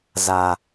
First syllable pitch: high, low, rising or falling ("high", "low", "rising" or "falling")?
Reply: high